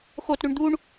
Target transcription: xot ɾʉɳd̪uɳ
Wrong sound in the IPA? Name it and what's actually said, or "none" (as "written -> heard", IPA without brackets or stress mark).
none